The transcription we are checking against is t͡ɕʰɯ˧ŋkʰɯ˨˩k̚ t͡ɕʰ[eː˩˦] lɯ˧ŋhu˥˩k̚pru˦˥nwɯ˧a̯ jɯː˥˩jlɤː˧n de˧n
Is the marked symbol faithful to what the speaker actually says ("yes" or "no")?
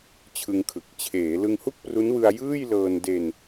yes